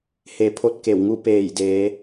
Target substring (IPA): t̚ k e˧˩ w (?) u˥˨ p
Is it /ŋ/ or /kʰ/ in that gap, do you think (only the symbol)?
ŋ